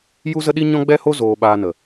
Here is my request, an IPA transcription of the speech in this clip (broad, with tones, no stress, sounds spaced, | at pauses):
j u˦ z ə˦ ɗ i˦ ɲ ɔ̃˦ ɡ͡b ɛ˦ h o˦ z oː˧ ɓ aː˧ n ə˨